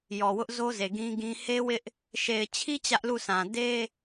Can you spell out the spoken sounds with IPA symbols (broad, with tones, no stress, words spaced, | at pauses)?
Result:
jɔ˨wʊ˦ʔzo˦ze˨ ɡĩ˦ɡĩ˦ he˦wɪ˦ʔ | ʃe˨ɪ̯t͡ɕʰi˦ t͡ɕä˦ʔlu˦˨sʰã˨ de˦